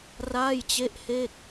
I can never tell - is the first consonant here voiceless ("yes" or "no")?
no